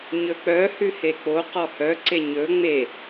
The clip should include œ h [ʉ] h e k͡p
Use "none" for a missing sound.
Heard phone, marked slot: ʉ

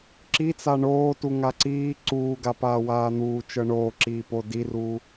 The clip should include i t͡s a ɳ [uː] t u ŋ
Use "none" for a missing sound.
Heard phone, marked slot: oː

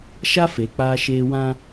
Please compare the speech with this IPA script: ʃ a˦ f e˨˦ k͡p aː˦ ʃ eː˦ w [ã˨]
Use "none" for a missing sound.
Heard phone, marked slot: ã˦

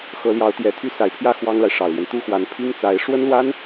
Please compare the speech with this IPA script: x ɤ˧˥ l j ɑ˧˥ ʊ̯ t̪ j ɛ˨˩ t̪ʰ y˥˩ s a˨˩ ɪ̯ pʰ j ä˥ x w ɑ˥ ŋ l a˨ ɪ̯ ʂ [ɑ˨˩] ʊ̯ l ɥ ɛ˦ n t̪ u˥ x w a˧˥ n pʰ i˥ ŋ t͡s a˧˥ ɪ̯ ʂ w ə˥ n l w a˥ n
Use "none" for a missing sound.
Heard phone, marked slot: ɑ˨˩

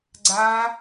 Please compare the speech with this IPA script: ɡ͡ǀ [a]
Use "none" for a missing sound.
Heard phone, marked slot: a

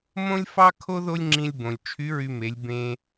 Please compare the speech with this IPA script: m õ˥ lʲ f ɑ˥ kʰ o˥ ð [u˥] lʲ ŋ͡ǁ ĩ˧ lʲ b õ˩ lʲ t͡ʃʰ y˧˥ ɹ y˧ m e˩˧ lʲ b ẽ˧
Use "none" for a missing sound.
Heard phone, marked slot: o˥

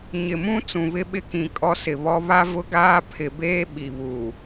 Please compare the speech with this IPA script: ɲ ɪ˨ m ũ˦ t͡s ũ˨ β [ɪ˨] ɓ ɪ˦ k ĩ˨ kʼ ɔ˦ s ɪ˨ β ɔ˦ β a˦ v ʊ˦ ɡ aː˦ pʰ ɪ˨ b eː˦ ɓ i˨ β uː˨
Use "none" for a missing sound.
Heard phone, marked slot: ɪ˦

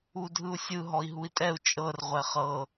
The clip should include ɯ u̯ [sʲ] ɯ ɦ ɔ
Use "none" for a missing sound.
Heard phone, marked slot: sʲ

